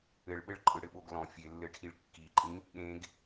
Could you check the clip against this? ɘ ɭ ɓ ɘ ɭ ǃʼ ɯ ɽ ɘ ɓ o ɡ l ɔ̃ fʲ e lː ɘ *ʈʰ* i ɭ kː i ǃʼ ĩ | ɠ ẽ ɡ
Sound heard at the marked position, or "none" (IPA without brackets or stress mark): ʈʰ